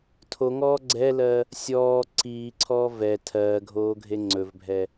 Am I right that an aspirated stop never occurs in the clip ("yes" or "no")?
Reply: no